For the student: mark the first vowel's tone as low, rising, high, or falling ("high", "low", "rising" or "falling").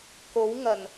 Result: rising